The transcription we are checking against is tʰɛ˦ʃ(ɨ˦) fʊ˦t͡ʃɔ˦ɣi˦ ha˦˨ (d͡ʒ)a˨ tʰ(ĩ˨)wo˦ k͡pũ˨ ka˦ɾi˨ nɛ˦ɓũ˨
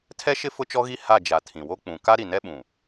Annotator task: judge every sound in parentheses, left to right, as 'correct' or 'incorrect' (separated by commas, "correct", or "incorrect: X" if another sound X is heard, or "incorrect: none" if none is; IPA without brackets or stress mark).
incorrect: ɪ˦, correct, correct